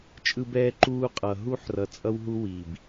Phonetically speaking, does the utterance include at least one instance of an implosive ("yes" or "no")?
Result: no